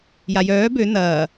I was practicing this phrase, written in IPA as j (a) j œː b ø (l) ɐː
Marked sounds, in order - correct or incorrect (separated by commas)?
correct, incorrect